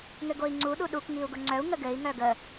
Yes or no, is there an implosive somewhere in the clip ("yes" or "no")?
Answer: yes